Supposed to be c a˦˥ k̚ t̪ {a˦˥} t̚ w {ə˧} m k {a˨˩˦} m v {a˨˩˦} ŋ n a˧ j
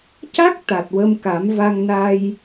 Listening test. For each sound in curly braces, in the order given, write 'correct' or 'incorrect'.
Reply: incorrect, correct, correct, incorrect

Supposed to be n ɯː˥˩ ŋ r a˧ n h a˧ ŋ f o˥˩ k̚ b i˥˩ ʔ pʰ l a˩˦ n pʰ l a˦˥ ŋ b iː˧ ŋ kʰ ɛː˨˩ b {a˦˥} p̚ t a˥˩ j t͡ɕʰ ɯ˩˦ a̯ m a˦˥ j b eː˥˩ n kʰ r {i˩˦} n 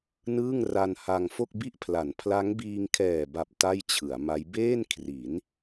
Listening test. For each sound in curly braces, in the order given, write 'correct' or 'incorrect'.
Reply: incorrect, correct

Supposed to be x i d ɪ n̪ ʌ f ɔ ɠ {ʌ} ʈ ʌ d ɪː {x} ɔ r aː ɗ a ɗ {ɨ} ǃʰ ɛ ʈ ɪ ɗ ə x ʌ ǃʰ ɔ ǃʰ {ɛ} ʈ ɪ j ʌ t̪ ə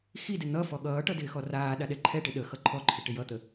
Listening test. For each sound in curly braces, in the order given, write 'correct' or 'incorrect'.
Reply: incorrect, correct, incorrect, incorrect

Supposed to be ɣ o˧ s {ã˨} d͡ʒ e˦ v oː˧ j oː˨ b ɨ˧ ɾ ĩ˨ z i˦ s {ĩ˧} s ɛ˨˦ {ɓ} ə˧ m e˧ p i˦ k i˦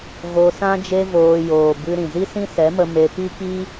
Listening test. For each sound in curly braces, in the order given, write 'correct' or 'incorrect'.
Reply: incorrect, incorrect, incorrect

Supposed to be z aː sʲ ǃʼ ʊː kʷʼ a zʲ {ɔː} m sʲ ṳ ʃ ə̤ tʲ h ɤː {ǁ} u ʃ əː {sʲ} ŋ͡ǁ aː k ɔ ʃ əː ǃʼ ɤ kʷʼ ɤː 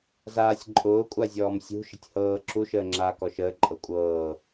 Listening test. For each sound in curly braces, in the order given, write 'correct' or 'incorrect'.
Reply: correct, correct, incorrect

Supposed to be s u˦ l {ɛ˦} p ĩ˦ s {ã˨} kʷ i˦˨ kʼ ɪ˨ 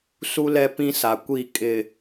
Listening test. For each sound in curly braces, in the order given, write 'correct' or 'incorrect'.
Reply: correct, incorrect

